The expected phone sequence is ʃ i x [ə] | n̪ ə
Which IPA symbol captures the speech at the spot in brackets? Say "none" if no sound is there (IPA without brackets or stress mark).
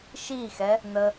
ɛ